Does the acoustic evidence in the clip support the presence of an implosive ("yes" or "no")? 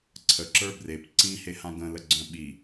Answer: yes